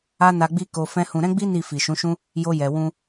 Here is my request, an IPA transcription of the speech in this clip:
a˦ n a˧ ɡ͡b i˦ k o˧ f ɛ̃˦ h ũ˧ ɾ ɛ̃˦ ɡ͡b i˦ n i˦˨ f i˨ ʃ ũ˨˦ ʃ ũ˦ | j o˧ j ɛ˨ w ũ˧

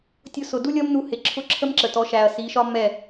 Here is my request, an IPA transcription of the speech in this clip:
tʲ ʊ˧ s ʊ˨ d u˦ lʲ ʌ˦ m n u˧ h ɪ˨ ǁʰ ʊ˧ ǁʰ ə˦ m ǁ ə˨ t ɔ˨˦ ʃ æ˨ ɐ̯ s i˨˦ ʃ ɒ˦ m ɛ˦˨

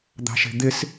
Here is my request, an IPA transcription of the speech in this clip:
d̪ ɑ̤ ʃ e̤ d̪ ɪ s

